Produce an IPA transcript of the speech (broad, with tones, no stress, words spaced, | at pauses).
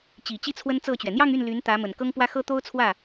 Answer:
t͡ɕi˨˩ t͡ɕi˥˩ t͡sʰwə˥n t͡sɤ˥˩t͡ɕɥɛ˩ n̪jɑ˥˧ŋy˥˩n ly˧˥n t̪ä˧˥mə˨˩n kɤ˥ŋpwä˥xɤ˥ t̪o˥ʊ̯ t͡sʰwä˥˩